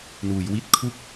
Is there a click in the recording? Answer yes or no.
no